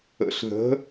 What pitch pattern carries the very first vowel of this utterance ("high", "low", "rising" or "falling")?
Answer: rising